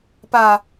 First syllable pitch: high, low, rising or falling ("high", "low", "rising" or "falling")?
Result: low